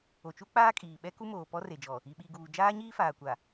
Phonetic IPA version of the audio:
o˨ t͡ʃ u˦ k͡p aː˦ kʼ iː˨ ɓ ɛ˦ k u˦ m oː˨ p ɔ˦ r e˨ d͡ʒ ɔ˨ | i˨ ɓ i˨ ɡ uː˨ d͡ʒ aː˦ ɲ iː˦ f aː˨ kʷ a˨

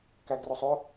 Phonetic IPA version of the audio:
k æ ɡ r ʊ sˤ ʊ

